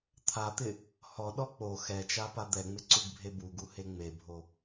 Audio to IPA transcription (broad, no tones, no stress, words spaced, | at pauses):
t̪ʰat̪ɪ | hɔɗɔ k͡po xɛt͡ʃapa d̪ɛŋ͡mɪǀuɡbʱe buɡuhe ŋ͡mebʱo